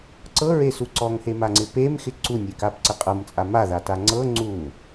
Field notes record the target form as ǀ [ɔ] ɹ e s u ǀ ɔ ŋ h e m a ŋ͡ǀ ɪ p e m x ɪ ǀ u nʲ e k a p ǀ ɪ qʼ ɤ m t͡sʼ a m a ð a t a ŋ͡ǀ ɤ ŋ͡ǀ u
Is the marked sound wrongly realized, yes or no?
yes